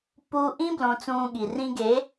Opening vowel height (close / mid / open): close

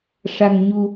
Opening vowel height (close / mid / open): open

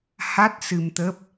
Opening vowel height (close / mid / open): open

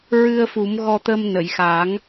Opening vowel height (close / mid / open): close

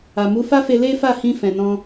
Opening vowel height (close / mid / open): open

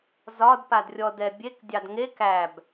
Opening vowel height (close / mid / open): open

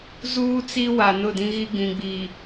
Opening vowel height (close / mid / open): close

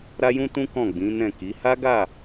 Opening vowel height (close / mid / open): open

